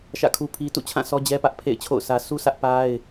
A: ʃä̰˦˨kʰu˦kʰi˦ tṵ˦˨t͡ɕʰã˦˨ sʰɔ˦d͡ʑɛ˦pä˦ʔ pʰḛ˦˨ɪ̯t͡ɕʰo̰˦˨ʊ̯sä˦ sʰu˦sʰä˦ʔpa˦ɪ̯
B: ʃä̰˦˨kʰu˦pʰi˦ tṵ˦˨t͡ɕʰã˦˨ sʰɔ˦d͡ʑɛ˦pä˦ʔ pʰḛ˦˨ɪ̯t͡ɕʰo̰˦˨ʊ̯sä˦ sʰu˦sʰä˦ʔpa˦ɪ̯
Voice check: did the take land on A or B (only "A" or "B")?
B